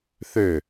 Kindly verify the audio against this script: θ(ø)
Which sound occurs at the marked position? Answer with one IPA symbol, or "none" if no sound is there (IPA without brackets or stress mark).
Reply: ø